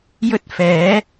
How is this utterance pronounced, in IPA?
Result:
jɵ˥t̚fɛː˨˥

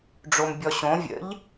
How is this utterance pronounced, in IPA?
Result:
ɖ͡ʐombʲɔɕõ vʲə̰ʎ

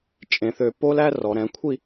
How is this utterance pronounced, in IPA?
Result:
t͡ʃʼẽ˩˧θø˧˩po˥læ˥ rɔ˩˧ ɾɛ̃˩˧kʷʰi˥˧

